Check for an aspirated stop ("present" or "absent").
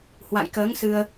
absent